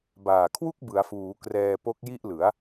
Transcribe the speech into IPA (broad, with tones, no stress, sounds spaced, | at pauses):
b aː˨˩ kʰ w u˥˩ k̚ b ɯ˩˦ a̯ f uː˩˦ k r ɛː˧ p o˦˥ k̚ j i˥˩ ʔ l ɯ˩˦ a̯